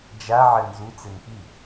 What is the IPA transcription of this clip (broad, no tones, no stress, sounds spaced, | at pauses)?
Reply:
d͡ʒ a ʕ ɘ n z u t͡s e n p i